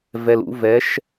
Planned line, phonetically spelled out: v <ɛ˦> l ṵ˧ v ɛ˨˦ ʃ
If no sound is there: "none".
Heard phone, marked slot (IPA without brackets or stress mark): ɛ˨